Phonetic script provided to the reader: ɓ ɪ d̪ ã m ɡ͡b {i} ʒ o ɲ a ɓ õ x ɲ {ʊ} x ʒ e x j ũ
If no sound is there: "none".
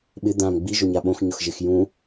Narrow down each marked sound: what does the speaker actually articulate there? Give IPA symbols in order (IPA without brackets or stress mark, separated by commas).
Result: i, ʊ